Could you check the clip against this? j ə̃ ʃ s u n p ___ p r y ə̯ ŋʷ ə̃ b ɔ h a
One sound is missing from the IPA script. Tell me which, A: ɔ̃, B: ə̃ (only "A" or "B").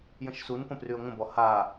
B